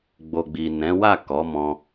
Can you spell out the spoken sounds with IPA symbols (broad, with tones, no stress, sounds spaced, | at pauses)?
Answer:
ɡ͡b o˨ ɡ͡b i˨ n ɛ̃˨˦ w a˦˨ k ɔ˨˦ m ɔ̃˧